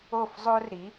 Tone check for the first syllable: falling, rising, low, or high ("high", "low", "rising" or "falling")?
falling